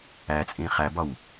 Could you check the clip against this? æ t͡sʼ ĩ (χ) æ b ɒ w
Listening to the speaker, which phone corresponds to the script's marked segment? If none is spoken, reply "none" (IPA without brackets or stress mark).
χ